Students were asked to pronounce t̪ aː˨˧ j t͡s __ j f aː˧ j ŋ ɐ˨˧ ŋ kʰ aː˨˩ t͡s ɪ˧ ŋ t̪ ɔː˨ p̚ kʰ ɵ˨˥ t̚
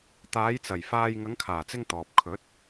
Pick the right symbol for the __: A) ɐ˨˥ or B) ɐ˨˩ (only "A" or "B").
B